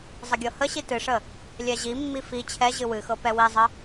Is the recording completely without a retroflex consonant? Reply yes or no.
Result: no